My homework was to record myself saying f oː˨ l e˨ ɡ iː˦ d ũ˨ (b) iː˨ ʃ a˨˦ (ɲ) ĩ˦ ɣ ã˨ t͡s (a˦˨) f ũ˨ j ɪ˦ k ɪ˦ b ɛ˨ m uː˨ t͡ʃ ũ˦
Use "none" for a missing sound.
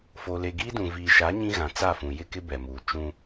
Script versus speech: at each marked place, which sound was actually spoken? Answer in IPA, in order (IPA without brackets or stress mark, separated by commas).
v, ɲ, a˦˨